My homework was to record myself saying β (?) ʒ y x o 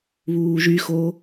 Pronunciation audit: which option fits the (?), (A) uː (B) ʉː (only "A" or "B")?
A